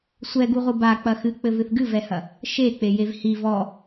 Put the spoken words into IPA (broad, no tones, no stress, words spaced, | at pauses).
sʷɛɡuʁʷɨ ba k͡pɐxɨk͡pɘvɨθ ɡɨvɛhɐ | ʃek͡pejev hi vɔ